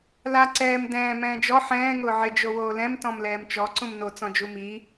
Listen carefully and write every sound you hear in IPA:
la ǀɛːm dɛ̃ː mɛ̃ːd͡ʒɔ ħɛ̃ː ŋʊːʕɪ d͡ʒowoːlɛ̃m tɔ̃mlɛːmt͡ʃɔ ǀũmno t͡sɔ̃d͡ʒumi

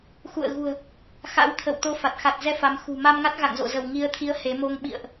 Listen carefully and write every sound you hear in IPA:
xṵ˧˨ə̯ɣṳ˨˩ə̯ | xa̰˧˥w t̪ʰə̰˧˨w t̪o˧fa˨˩t̚ xa˨˩t̚zɛ˧ fa˨˦mxṳ˨˩ ma˧mŋa˦˥t̚ɣa̰˧˨ŋzo̰˧˨ zə˧˩wŋi˨˦ə̯ t̪ʰi˨˦ə̯ he˨˦ mo˧ŋ ɓḭ˧˨ə̯ʔ

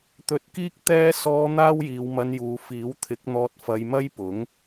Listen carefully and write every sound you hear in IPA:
t̪ɵ˧t̚kiː˥k̚ t̪ɛː˥ sɔː˧ n̪aː˥wjiː˨˧wmɐ˧njuː˨˧ fiː˨˥wt̪ʰɪ˨˥k̚n̪ɔː˧t̚ fɐ˧jmɐ˥jpʊ˨˥ŋ

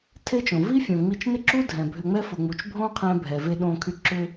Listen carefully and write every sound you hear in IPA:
tʰe˥t͡ʃõ˩ vi˥fʲõ˩ ŋ͡mi˧t͡ʃnɪ˥ǁu˥ dʱɛ̃˩bʱʏ˧ŋ͡mɛ˥ fʊ˩ŋ͡mu˩t͡ʃbʱõ˥qʰɛ̃˧ bʱɛ˩ve˧ɗõ˧kʰy˧ ǁʏ˧

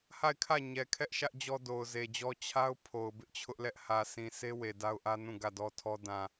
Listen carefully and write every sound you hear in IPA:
ha˦˨ɪ̯kʰä˦˨ ɲɛ˨kʰɛ˦ʔʃä˦ʔ d͡ʑɔ˦do˨ʊ̯ze˨d͡ʑɔ˦ t͡ɕʰa˦ʊ̯ pʰo˨ʊ̯bɪ˦ʔt͡ɕʰʊ˦ʔlɛ˦ʔ hä˨sʰĩ˨se˦ we˨da˦ʊ̯ʔä˦nũ˦˨ ɡä˦˨dɔ˦tʰɔ˦ dã˨

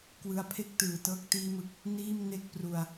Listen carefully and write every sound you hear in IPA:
kwɯ˦˥a̯pʰe˥˩k̚ tɯː˨˩tɤː˦˥k̚ tiː˦˥mɯ˨˩k̚ | niː˥˩mne˥˩k̚pru˧a̯

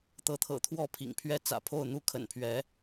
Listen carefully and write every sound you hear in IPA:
t̪ɤ˧˥t̪ʰɤ̰˨˩t̪ʰwɔ˥˩ pʰḭ˨˩ŋpʰɥɛ˥ t͡sä̰˨˩pʰo˥˩ʊ̯n̪u˥ kʰə̰˨˩npʰɥɛ˧˥

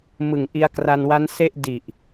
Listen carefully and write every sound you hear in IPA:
mɯ˨˩ŋʔi˧a̯ kra˧nwa˦˥nse˥˩ʔ di˨˩ʔ

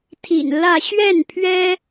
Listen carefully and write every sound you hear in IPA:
t̪ʰḭ˨˩nlä˥˧ ɕɥɛ˥˩npʰɥɛ˥

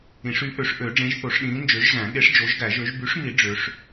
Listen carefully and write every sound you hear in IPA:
ĩ˨˩˦ʂy˨˥ ʔø˨˩˦ʂ ʔø˨˩˦ ɖ͡ʐẽ˨˥ʒθo˨˩˦ʂɗĩː˨˥ nd͡ʒø˨˥ʒzæ̃˨˩˦ ɠe˨˥ʂ d͡ʒo˨˥ʒɡæ˨˩˦ʒø˨˥ʒ by˨˥ʂmi˨˩˦ ɖ͡ʐø˨˥ʂ

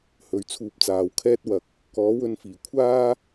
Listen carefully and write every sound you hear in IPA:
hɵ˨˧ɥt͡sʰuː˧p̚t͡saː˨˧w kʰɛː˥t̚ wɐ˨k̚ | kɔː˨˥wɵ˧nfiː˨˩ kʷʰaː˥

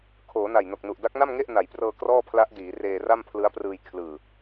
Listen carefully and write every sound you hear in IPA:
kʰoː˩˦na˨˩jno˨˩k̚nu˨˩ʔ da˦˥k̚na˥˩mŋe˥˩ʔ na˩˦jprɤː˧ krɔː˥˩pʰla˦˥ʔdiː˩˦ reː˧ra˥˩mpʰlɯ˦˥a̯ prɯː˧j kʰlɯː˨˩

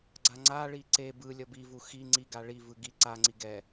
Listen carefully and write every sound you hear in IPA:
ɡ͡ǀaŋ͡ǀaɭi ǀe bɯlʲʌ bivu xi ŋ͡ǀiɡa ɭivɯ ɡi ǀaŋ͡ǀi ɡɛ

